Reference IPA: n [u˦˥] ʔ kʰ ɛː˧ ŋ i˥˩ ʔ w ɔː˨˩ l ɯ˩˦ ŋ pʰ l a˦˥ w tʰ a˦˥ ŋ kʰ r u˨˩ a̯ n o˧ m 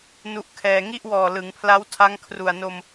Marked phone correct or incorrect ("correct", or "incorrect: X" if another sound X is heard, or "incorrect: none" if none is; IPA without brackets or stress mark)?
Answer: correct